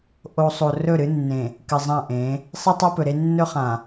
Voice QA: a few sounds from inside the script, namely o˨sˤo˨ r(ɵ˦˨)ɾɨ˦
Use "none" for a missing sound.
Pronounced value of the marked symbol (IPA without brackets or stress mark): ɵ˦˨